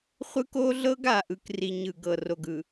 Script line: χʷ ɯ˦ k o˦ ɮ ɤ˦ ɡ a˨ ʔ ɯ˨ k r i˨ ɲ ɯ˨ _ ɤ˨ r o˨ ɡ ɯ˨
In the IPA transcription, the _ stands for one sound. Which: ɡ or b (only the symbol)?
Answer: ɡ